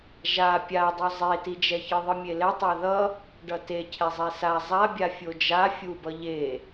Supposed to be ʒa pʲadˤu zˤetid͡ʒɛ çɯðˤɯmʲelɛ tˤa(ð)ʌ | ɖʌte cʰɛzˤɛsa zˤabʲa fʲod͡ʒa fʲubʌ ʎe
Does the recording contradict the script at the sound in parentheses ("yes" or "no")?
no